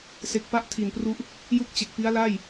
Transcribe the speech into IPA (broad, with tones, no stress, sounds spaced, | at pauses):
s e˦˥ k̚ p a˦˥ ʔ tʰ i˨˩ n p r u˦˥ ʔ | j u˥˩ k̚ t͡ɕ e˨˩ k̚ p i˦˥ a̯ l a˥˩ j